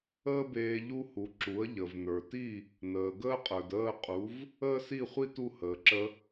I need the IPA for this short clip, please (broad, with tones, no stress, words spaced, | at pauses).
əː˥beː˧ ʎu˥hu˩˥ ǁu˩˥ə̯ ʎə˩vnə˞˩ ti˥˩ | nəː˩ɡəː˥qʼə˞˩d əː˥˩ qʼu˩˥v | əː˥si˥˩χʷi˥ tu˥˩ həː˩ǁə˧